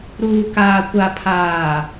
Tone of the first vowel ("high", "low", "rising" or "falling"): low